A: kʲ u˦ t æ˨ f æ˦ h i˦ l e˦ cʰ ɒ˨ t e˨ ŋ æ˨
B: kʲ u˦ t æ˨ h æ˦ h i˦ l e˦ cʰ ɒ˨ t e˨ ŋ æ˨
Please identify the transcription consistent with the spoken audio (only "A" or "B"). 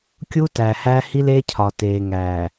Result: B